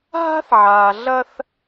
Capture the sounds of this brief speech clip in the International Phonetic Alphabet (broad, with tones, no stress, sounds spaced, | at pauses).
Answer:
ɦ a̤˦ θ ʕ aː˨ ɮ ɐ˦ θ